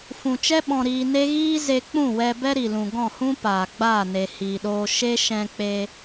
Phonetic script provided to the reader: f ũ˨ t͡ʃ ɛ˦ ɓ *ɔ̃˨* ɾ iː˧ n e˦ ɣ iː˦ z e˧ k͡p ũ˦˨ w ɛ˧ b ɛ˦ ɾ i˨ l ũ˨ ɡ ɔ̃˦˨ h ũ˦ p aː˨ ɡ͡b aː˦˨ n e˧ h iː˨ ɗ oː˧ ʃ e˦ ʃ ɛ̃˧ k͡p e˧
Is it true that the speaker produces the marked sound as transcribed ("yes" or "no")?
no